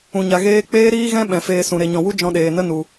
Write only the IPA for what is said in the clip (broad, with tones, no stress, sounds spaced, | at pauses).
ũ˨ ɲ a˨ ɣ eː˧ k͡p eː˦ ɾ iː˦ ɣ ɛ̃˦ ɓ ɛ̃˨ f eː˧ s ũ˨ ɾ e˨ ɲ ɔ̃˨ w u˦ d͡ʒ ɔ̃˧ ɗ eː˨ n ə˦ n u˨